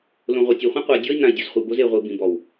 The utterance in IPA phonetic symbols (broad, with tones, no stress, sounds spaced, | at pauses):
l õ˨ ʁʷ i˨ tʲ e˨ χʷ ɐ̃˦ qʷ a˨ dʲ ɔ˦ i̯ n ã˨ i̯ dʲ o˨ z χʷ e˨ b o˦ z e˨ ʁʷ i˨ b ĩ˨ b ɔ˨ w